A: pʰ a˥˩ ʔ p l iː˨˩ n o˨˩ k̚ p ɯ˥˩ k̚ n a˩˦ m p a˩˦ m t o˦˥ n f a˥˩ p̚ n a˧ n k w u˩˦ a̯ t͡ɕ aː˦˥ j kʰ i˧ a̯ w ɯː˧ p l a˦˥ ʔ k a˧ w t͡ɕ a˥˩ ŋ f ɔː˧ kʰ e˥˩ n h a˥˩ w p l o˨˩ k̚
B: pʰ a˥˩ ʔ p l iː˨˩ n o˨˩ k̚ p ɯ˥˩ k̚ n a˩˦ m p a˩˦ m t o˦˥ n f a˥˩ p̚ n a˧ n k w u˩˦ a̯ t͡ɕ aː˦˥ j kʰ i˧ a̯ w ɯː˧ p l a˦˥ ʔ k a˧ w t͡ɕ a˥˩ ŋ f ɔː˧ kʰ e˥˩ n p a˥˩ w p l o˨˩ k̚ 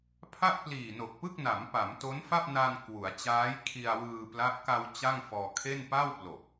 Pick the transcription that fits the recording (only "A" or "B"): B